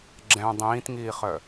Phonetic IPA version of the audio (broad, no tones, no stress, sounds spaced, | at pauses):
ɡ͡ǁ ɛ̃ dˤ ĩː t ŋ iː χ œ